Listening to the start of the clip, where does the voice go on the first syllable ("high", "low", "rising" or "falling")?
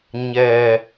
low